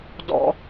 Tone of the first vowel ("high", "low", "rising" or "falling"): high